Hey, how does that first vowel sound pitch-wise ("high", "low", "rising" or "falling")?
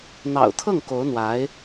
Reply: low